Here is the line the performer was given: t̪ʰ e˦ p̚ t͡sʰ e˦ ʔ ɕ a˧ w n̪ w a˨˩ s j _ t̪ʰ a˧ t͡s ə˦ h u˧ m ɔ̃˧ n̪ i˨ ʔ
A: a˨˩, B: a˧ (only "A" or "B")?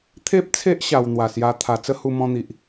B